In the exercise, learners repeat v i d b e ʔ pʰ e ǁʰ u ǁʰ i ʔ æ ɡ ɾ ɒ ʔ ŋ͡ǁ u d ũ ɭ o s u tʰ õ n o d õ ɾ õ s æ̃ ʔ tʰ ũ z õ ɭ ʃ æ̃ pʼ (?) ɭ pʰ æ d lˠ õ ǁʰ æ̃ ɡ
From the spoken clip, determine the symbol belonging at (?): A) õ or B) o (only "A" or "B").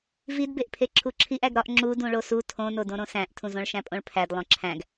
A